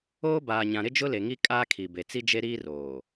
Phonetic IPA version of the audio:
oː˦ b aː˨ ɲ ã˨ ɾ ɪ˦ d͡ʒ ʊ˦ l e˨ ŋ i˦ kʼ aː˦ kʰ i˨ b e˨ t͡s i˦ d͡ʒ e˦ ɾ iː˦ r oː˨

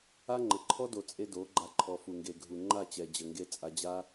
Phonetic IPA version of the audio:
a˦ ŋ͡ǃ ə˨ ǃʰ ɔ˦ d o˨ t͡sʼ e˧ d o˨˦ ɡ͡ǃ a˧ ǃʰ ɔ˨ f u˨ ŋ ɡ e˨ ɡʱ u˨ ŋ͡ǃ a˦˨ t͡ɕ ɛ˨ d͡ʑ ə˨ ŋ ɡ e˧ t͡sʼ a˧ d͡ʑ a˦

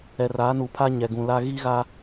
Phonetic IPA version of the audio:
ɛ˨ r aː˨˦ n u˨ pʰ a˦ ɲ ɛ˨ ɡ ũ˨ l a˦ ɣ i˦ ɣ a˦

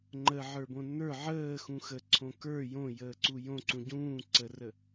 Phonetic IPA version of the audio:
ŋ͡ǃ ə ʕ ə˞ b õ n ə˞ ʕ əː x ũ x ə ǀʰ õ k ə˞ j õ j əː ǀ u j õ ǀ ũ ɟ ũː ǀ ə r ə

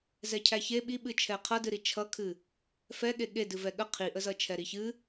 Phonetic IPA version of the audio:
z ɛ cʰ æ ç e ɓ i ɓ ɨ t͡ʃʰ ɛ qʰ ʌ d ɨ ɾ i t͡ʃʰ ʌ kʰ ɨ | f ɛ ɠ e ɠ e d ɨ v ɛ ɠ ə qʰ i ʔ ə z ʌ t͡ʃʰ ɛ ɾ i ç ɨ

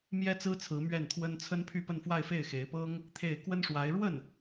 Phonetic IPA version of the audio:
m j ɛ˥ t͡s ɹ̩˥ t͡sʰ ɹ̩˧˥ m ɥ ɛ˥˩ n t̪ʰ w ə˥ n t͡sʰ ə˥ n pʰ y˥˧ p ə˥˧ n f w a˥˧ ɪ̯ f e˥˩ ɪ̯ x e˧˥ ɪ̯ p ɤ˥ ŋ | t̪ʰ e˥˩ ɪ̯ k w ə˥ n ʂ w a˧˥ ɪ̯ ɻ w ə˥˩ n

